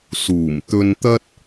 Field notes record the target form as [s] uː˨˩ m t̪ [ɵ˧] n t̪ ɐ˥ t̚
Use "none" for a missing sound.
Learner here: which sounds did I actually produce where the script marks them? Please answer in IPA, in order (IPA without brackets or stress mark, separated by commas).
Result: s, ɵ˧